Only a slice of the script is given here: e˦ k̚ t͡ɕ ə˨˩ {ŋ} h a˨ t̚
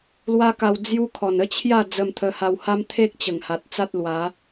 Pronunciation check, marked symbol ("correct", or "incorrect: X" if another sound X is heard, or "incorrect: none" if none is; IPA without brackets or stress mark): correct